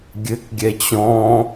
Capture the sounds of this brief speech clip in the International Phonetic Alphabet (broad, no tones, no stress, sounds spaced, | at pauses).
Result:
ɡʲ ɘ k ɡʲ ɛ t͡ɕ ɔ̃